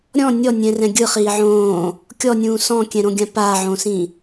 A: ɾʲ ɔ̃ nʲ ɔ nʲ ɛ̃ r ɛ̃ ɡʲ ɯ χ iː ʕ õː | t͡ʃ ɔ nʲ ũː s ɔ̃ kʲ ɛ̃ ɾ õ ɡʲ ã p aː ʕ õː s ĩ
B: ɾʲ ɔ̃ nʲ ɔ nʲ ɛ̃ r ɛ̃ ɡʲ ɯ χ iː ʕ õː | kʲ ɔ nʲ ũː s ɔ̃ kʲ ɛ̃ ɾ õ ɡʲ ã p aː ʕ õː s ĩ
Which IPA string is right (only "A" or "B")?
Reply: B